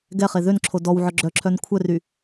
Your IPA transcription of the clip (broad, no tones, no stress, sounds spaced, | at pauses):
ɡ ɛ χ e ð ø n ǁʰ o d ɔ w ʕ œ ɡ͡ǁ œ ǁʰ œ n kʷʰ œ r y